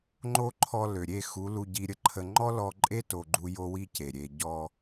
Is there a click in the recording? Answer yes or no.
yes